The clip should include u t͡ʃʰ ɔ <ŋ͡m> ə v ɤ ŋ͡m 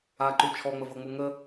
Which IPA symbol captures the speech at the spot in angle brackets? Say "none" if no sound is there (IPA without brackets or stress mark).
ŋ͡m